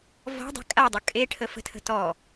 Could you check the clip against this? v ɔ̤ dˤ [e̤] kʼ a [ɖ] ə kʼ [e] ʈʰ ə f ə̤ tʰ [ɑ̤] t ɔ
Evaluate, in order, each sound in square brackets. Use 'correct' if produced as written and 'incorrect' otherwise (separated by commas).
correct, incorrect, correct, incorrect